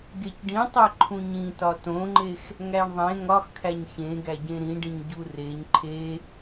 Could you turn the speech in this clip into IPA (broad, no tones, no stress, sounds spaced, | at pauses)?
ɡ e c ɖ ĩ tˤ e ǃʰ ũ ɲ ĩ t ɒ t õ ŋ͡ǃ e x | ŋ æ ɳ ðˤ ẽ ŋ ɒ x kʰ æ ɲ ç ẽ ɡ æ ɟ ẽ ɾ ĩ ɖ ĩ ɲ ɟ u r e ɲ ǃʰ e